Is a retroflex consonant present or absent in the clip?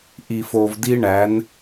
present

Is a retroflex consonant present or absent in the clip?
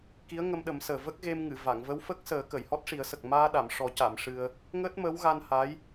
present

